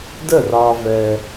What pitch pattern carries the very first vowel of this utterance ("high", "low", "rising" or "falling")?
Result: falling